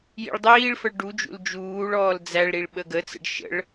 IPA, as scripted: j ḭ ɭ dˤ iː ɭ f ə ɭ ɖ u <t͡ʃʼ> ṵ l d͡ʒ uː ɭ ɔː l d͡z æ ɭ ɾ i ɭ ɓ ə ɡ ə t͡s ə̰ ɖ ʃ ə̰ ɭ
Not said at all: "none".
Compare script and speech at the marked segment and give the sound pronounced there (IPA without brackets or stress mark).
d͡ʒ